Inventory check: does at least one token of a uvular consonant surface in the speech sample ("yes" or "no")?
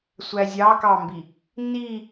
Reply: no